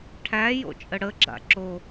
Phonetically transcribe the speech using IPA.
ʈʰæ jo̰t͡ʃʼəɽəɡ͡ǁa̰ ǁo

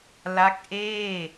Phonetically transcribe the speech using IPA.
la˦˥k̚ʔeː˥˩

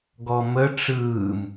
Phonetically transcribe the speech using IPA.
ɡɔmə ʈ͡ʂɯːm

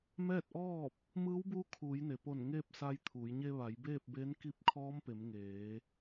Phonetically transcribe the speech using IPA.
mɛː˥˨t̚ʔɔː˥˨p̚ | mɯː˧˥wbuː˧˥ kʰuː˩˧jne˩po˧˩n ŋeː˥˨p̚sa˧jt̪ʰuː˩˧j ɲe˧ʋa˩˧j beː˥˨p̚be˧˥n ki˧˥p̚kʰɔː˧˥mpe˩˧m ŋeː˩˧

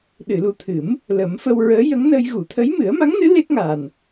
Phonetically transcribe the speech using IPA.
ɗɨ˨˩˨lu˨˩t̪ʰɨ˨˩˦m | lə˨˩˦mfə˧w ɹəː˧˥jə˧˥ŋnə˧j ɣu˨˩˨t̪ʰə˧˥j mɨ˨˩˦ə̯ma˧˥ŋnɨ˧˥ le˦˥k̚ŋaː˨˩n

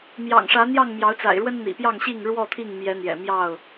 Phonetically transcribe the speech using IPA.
mjɑ̰˨˩ŋʂä˨˦n̪jɑ˥˨ŋ mjɑ˨˦ʊ̯t͡sa̰˨˩ɪ̯ɻwə˦n n̪ḭ˨˩pjɑ˥˨ŋɕi˥˨ŋ ɻwɔ˥˨t̪ʰi˥˨ŋ mjɛ˨˦n̪jɛ̰˨˩ mjɑ˥˨ʊ̯

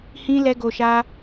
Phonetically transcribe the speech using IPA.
hĩ˧ lɛ˧ɡo˨ʃa˧

